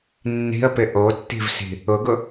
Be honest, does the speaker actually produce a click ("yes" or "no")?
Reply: no